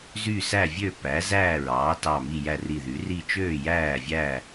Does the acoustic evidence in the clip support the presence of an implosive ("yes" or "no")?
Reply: no